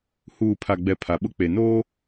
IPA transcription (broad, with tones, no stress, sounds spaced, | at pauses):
h uː˨ pʰ a˨ ɡ͡b ɛ˨ pʰ a˨ ɓ ʊ˦ k͡p e˨ n oː˦